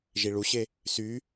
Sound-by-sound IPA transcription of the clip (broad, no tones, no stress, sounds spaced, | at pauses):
ʒ i ɭ u ɕ e | s y